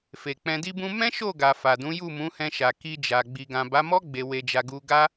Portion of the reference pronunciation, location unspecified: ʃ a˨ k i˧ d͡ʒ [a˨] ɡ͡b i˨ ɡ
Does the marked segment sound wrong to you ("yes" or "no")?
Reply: no